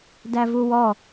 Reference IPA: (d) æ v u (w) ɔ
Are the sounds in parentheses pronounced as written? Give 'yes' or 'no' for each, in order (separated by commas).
yes, yes